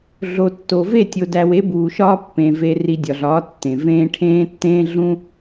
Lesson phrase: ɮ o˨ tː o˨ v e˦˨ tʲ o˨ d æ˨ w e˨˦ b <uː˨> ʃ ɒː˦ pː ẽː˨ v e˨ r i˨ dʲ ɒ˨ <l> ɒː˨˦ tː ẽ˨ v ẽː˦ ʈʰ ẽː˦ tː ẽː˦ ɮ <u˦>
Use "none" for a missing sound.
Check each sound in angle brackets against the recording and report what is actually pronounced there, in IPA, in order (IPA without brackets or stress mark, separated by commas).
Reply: uː˨, ɮ, ũ˦